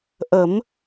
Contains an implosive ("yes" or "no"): no